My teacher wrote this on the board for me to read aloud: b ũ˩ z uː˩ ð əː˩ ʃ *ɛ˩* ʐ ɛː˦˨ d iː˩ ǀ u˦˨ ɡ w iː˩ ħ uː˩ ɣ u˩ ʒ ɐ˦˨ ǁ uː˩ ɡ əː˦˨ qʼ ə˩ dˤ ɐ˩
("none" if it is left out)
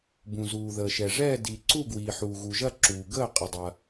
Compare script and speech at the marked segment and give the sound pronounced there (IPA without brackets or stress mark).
ɛ˩